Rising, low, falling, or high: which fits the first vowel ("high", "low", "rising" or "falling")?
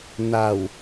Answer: low